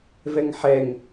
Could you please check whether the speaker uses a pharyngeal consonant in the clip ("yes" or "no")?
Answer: yes